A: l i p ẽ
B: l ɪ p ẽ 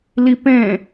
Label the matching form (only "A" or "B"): A